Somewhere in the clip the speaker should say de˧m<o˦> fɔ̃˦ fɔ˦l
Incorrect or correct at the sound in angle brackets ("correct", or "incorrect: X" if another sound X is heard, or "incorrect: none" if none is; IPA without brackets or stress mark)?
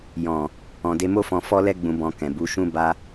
correct